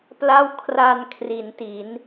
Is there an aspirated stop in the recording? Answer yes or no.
yes